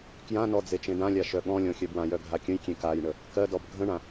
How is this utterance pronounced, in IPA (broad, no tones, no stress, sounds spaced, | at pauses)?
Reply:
k j ã n ɔ d͡z e t͡ʃ ẽ d ã lʲ a ʃ œ ɠ ɔ̃ lʲ ɔ̃ xʲ œ b w ã j œ ɡʱ a kʲ ə̃ j kʲ ẽ k a j ɳ ə | k ɜ d ɔ b ɡʱ ə̃ ɳ ã